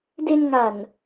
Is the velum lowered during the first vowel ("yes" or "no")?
no